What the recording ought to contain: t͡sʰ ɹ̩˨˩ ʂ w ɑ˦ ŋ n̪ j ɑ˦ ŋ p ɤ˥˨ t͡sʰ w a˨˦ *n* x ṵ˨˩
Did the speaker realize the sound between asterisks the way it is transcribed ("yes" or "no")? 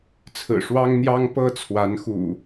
yes